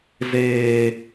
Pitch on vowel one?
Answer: low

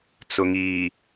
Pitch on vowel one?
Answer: low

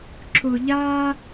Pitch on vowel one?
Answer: low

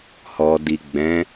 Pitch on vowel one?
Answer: low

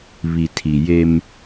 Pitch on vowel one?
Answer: low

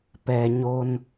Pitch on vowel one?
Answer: low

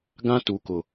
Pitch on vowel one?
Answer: high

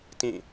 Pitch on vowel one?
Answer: falling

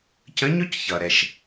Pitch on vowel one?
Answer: rising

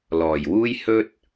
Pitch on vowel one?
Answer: low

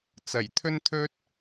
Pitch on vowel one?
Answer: low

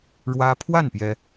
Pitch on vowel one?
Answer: high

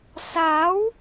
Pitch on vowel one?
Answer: rising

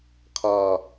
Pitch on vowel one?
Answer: low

